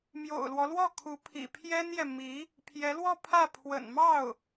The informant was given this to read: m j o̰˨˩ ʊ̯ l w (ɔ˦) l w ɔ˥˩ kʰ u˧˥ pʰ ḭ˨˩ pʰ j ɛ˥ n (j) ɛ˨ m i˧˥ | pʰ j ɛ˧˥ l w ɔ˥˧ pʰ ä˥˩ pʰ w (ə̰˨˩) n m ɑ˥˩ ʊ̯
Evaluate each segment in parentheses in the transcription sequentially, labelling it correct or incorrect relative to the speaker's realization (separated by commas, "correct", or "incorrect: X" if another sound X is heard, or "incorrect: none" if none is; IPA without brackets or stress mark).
correct, correct, correct